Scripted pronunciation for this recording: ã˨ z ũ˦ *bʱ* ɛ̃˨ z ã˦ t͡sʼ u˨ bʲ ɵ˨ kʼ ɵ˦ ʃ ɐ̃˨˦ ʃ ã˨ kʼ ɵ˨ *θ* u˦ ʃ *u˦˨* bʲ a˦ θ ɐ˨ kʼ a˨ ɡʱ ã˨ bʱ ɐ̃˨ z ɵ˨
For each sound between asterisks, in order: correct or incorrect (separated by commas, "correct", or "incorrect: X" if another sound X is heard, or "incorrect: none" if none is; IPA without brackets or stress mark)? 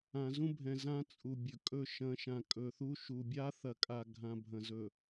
correct, correct, incorrect: u˨